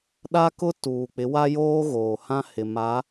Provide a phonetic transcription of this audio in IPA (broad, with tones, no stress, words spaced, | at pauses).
ɗa˦kʊ˦ tuː˨k͡pɪ˨˦ wa˦joː˦ɣoː˨hã˦ hɪ˨ ma˨˦